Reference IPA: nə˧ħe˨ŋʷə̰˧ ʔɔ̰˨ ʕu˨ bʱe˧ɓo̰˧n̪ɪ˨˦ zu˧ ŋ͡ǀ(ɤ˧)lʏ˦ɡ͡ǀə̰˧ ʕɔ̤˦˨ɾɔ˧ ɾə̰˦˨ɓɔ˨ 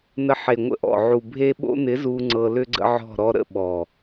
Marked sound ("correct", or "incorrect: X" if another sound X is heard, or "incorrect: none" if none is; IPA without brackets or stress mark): correct